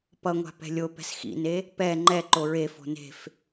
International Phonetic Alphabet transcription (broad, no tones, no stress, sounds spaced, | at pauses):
p ʌ ŋʷ a̤ p ɛ̤ lʲ o p ɛ̤ s x ḭ n e | p ɛ ŋ͡ǃ ɛ ǃ o ɹ e f o̤ n e̤ f